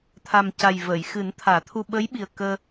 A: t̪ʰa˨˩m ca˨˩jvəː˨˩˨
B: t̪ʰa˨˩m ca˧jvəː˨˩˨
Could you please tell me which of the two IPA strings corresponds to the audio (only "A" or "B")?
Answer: A